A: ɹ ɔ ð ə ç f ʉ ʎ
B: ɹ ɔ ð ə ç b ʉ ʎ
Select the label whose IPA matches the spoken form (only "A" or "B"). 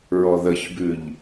B